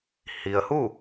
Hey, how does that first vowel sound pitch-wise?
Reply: low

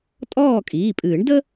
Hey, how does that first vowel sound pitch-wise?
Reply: falling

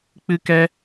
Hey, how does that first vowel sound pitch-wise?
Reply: high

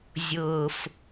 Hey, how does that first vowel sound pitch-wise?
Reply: low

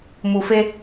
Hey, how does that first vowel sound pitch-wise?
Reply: low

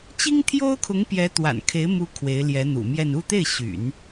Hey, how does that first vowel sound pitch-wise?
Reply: high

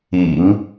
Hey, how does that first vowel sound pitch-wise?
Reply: low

